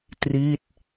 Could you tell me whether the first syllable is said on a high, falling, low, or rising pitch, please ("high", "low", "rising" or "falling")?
falling